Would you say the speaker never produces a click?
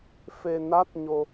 yes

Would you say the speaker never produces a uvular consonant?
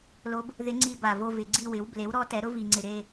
yes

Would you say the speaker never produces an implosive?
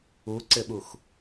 no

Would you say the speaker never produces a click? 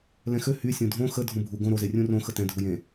yes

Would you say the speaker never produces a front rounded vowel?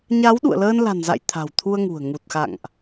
yes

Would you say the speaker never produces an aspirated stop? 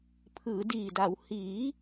no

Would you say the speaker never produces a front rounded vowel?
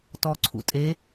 yes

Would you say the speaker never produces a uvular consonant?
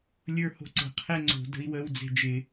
no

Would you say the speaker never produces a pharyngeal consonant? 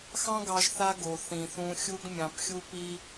yes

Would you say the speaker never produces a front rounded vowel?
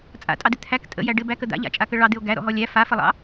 yes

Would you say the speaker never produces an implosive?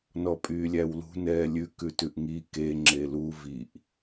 yes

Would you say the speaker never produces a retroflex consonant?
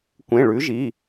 no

